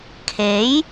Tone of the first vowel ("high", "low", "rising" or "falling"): rising